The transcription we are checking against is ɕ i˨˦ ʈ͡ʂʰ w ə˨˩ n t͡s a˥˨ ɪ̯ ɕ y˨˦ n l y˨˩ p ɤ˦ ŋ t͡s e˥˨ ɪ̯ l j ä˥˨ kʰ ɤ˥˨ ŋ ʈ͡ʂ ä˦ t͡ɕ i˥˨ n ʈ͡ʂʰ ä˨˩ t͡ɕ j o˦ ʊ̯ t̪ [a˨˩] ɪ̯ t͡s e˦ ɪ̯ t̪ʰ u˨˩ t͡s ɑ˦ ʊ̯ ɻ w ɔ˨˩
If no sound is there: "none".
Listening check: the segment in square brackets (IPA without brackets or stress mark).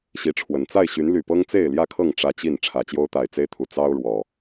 a˨˩